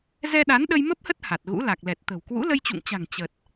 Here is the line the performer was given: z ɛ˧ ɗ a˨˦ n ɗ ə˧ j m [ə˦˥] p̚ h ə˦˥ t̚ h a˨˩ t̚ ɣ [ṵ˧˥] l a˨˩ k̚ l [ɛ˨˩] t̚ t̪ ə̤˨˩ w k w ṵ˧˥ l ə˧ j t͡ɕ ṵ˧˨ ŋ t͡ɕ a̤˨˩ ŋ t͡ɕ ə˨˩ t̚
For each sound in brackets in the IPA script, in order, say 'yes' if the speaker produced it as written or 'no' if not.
yes, yes, yes

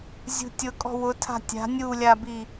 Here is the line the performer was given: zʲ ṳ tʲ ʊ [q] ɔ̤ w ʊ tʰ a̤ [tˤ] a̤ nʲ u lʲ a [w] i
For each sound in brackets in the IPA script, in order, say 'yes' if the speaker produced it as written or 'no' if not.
no, no, no

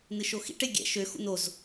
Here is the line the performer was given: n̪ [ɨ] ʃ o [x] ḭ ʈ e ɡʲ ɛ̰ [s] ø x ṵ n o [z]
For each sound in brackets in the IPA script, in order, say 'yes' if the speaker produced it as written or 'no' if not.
yes, yes, no, yes

